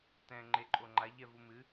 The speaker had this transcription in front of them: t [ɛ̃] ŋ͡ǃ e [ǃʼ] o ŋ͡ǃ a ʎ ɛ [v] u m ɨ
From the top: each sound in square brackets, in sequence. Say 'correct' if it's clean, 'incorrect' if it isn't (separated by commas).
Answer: correct, correct, correct